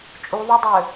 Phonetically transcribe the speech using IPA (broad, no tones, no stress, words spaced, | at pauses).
t͡ʃʼuðˤedˤø